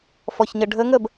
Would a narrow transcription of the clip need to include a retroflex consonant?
yes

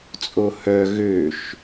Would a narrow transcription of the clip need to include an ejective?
yes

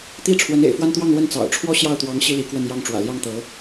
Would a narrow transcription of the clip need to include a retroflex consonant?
yes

